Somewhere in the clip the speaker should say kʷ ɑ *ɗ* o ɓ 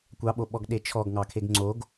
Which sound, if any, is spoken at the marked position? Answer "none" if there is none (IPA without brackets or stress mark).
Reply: ɓ